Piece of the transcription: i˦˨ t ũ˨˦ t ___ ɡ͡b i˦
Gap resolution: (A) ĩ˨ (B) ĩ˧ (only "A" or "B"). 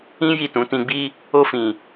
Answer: B